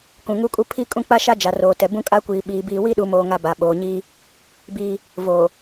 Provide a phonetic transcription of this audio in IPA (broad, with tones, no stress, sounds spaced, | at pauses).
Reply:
k ũ˨ ŋ u˦ kʼ u˦ pʰ i˦ kʼ ũ˦ k͡p a˦ ʃ a˦ d͡ʒ a˨ r oː˨ t ɛ˨ b ũ˦ kʼ a˦ kʷ iː˨ ɓ iː˨ b iː˦ w i˦ ɗ u˨ m oː˦ ŋ a˦ b a˨ ɓ oː˨ ɲ iː˦ | b iː˦ | v oː˨